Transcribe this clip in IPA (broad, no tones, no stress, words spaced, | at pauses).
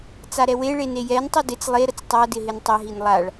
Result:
t͡saɾɛweɭe nejɛntˤu dɪt͡s lˠeɾət͡s tˤadɪ ɦɪntˤɛɦin lˠaɭ